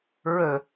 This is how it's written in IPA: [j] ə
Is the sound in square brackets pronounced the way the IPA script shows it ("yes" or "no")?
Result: no